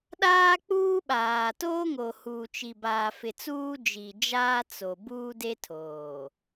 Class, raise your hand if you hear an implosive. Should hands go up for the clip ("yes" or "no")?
yes